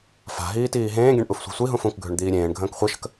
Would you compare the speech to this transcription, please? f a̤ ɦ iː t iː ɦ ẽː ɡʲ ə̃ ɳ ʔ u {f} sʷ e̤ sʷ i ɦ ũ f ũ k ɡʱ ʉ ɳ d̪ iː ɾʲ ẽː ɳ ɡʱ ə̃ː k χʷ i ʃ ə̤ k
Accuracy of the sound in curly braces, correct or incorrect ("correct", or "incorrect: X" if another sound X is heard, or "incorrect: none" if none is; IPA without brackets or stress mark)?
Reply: correct